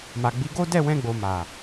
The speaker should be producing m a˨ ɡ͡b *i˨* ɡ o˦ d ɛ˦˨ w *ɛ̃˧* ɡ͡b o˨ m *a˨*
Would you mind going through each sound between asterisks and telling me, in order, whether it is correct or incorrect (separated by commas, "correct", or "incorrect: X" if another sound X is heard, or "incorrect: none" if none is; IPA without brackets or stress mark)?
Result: incorrect: i˨˦, correct, correct